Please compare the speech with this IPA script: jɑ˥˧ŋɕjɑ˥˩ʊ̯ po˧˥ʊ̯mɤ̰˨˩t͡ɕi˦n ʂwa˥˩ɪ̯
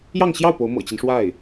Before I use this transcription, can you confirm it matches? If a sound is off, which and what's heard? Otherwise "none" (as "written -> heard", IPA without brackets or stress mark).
none